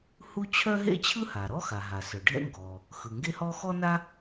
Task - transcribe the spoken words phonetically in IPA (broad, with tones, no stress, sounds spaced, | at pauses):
h u˥ t͡ɕʰ œ˥ ɦ ḛ˥ t͡ɕʰ ɯ˥ h a˩ ɾ ɔ˥ x a˩ ɦ a˩ s œ˩ ɖʱ ɛ̰˥ ŋ ɡ ɔ˩ | x ɯ˩ ŋ ɡ e˥ h ɔ˥ x ɔ˥ n a˥